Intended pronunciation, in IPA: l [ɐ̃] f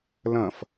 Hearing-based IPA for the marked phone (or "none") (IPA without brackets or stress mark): ɐ̃